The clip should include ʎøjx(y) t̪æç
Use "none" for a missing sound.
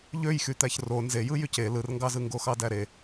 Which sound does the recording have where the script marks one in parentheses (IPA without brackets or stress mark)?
y